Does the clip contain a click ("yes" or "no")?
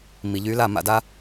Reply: no